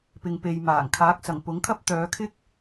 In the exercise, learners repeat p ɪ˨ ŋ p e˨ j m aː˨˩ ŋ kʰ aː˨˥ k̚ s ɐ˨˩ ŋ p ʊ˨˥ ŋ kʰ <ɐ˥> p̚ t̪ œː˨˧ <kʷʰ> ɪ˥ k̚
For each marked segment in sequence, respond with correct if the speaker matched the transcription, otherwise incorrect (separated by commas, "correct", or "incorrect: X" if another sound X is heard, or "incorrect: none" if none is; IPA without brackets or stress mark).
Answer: correct, incorrect: kʰ